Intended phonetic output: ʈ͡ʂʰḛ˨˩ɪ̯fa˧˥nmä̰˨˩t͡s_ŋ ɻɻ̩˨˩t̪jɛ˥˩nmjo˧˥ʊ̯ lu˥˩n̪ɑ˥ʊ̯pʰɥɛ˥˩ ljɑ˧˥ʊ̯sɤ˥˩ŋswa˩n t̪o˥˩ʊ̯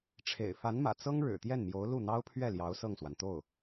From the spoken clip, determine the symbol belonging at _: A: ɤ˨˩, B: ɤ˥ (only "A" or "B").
B